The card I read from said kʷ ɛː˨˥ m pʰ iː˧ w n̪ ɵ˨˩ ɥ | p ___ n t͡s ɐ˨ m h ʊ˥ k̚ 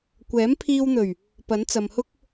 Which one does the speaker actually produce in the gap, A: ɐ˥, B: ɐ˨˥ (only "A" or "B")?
B